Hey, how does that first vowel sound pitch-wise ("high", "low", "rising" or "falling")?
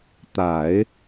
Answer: low